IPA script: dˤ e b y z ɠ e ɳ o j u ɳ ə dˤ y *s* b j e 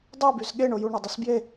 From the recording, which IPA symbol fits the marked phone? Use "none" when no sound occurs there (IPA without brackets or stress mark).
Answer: s